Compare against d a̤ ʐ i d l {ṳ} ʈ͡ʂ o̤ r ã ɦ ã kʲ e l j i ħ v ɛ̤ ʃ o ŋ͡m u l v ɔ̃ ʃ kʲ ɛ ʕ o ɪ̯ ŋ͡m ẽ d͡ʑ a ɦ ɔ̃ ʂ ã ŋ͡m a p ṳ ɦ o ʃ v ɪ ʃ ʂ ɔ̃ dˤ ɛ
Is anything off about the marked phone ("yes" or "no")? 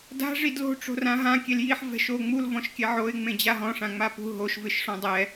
yes